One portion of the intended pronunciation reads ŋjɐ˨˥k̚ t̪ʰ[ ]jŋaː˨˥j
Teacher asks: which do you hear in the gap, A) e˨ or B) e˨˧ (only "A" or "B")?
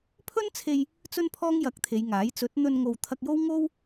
B